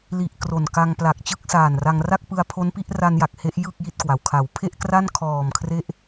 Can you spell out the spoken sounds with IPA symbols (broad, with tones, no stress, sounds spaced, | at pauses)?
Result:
l i˨˩ ʔ k r o˨˩ n k a˧ ŋ p l a˨˩ k̚ t͡ɕ ɯ˥˩ k̚ s aː˨˩ n r a˧ ŋ r a˥˩ k̚ p ɯ˧ a̯ pʰ o˦˥ n p i˦˥ ʔ r a˧ n j a˨˩ k̚ h e˦˥ ʔ j ɯ˥˩ k̚ j i˥˩ t̚ k w a˩˦ w kʰ a˩˦ w pʰ e˥˩ ʔ k r a˥˩ n kʰ ɔː˨˩ m kʰ r e˦˥ ʔ